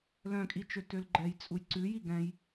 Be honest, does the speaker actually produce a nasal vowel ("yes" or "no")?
yes